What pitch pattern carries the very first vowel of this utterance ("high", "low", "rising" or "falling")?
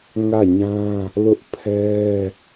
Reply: falling